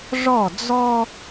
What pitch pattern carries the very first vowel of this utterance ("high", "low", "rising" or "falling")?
falling